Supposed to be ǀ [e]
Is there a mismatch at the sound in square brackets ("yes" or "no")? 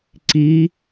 yes